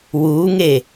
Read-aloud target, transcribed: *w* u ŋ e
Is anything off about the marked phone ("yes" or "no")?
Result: no